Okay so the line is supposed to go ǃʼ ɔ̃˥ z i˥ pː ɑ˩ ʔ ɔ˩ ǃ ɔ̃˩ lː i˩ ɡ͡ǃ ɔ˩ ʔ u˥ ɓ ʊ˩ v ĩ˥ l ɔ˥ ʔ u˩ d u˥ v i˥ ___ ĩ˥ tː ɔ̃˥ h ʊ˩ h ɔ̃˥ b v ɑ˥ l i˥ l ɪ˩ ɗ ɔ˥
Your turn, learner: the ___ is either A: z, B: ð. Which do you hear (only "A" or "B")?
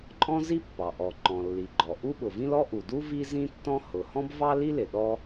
A